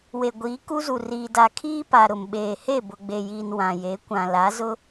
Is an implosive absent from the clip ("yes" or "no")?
no